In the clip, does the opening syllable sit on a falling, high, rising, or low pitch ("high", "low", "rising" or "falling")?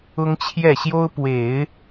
high